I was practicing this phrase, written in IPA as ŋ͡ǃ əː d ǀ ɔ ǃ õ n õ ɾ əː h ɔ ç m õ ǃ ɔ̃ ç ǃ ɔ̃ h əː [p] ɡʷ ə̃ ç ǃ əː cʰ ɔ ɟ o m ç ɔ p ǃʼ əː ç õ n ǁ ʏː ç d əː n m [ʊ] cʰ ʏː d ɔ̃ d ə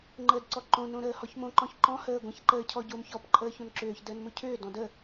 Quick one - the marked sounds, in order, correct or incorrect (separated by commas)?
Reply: incorrect, correct